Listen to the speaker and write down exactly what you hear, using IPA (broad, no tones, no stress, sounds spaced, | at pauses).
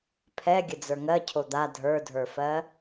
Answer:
pʰ ɛ ɡʲ ə d͡z ə˞ ŋ ɜ cʰ o d̪ a dʱ ə˞ dʱ ə˞ f ɜ